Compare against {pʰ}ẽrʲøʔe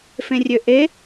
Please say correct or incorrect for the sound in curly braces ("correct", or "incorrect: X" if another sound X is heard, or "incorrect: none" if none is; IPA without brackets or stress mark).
incorrect: f